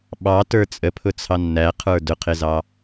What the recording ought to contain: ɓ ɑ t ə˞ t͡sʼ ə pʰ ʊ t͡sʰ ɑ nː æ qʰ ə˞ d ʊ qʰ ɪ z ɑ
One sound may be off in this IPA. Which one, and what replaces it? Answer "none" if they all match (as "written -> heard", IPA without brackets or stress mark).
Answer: none